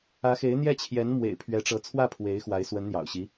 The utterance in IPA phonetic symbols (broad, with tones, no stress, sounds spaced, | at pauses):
ä˧˥ x e˧˥ ɪ̯ n̪ j ɛ˥˩ t͡ɕʰ j ɛ˧˥ n m w ḛ˨˩ ɪ̯ pʰ ɥ ɛ˧˥ ʈ͡ʂ ɤ˧˥ t͡sʰ w ä˥˩ pʰ w e˧˥ ɪ̯ x w a˧˥ ɪ̯ s w ə˧˥ n n̪ j ɑ̰˨˩ ʊ̯ ɕ i˧˥